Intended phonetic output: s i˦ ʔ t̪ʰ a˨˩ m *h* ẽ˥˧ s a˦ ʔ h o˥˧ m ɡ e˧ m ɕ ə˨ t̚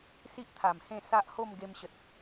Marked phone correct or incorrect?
correct